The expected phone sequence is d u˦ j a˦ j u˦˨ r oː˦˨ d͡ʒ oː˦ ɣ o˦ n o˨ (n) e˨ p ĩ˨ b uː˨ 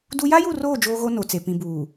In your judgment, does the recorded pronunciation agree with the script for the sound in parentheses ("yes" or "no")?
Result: no